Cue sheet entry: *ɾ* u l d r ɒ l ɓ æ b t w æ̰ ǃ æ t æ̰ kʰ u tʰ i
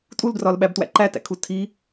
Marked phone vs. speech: incorrect: tʼ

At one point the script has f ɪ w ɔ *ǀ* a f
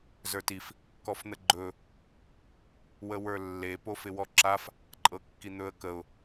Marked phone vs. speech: incorrect: ǁ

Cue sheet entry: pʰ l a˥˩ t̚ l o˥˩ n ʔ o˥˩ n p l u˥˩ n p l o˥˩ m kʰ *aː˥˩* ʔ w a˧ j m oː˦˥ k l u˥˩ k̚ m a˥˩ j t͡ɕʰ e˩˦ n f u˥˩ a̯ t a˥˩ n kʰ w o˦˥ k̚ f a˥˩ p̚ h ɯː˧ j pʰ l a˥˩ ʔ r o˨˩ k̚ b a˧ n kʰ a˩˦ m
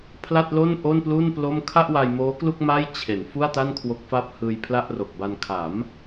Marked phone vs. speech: incorrect: a˥˩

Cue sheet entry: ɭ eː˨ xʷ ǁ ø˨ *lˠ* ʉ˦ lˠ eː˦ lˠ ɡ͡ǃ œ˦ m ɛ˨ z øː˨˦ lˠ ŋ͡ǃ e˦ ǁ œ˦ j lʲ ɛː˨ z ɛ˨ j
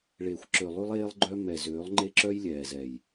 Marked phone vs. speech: correct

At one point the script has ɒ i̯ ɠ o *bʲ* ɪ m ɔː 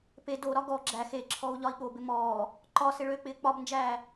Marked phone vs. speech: incorrect: b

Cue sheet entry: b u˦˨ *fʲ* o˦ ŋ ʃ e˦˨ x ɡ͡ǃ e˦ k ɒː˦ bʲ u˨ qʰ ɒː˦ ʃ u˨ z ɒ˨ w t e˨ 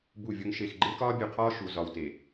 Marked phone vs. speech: incorrect: vʲ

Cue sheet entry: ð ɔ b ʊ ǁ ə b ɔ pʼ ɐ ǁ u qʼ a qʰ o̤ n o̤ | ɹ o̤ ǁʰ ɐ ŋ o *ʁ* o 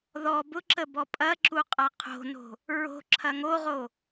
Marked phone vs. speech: correct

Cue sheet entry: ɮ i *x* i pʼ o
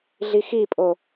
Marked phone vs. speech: correct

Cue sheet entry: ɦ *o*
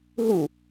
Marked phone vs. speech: incorrect: u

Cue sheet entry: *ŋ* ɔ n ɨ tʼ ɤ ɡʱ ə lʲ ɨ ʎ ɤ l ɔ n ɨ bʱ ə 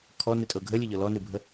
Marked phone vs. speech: incorrect: kʰ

